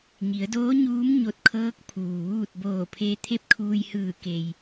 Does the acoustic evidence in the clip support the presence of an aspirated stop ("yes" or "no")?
yes